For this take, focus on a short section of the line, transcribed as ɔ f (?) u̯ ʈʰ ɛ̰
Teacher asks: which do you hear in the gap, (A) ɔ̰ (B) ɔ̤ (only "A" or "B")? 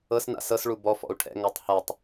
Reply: A